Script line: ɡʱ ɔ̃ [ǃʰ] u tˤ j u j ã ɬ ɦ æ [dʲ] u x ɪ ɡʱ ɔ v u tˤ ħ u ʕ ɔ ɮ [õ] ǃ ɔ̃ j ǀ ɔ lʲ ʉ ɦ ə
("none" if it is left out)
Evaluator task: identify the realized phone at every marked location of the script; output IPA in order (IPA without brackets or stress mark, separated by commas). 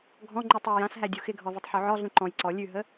ŋ͡ǃ, dʲ, ũ